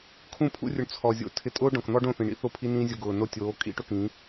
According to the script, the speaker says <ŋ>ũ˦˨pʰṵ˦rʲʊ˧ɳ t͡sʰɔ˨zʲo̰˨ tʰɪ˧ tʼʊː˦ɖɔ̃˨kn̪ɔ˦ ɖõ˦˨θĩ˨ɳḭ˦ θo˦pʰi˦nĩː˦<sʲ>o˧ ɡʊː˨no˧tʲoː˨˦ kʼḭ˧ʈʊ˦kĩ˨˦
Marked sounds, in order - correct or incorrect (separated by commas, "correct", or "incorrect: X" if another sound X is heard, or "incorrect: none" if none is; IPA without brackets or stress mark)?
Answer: incorrect: kʰ, incorrect: zʲ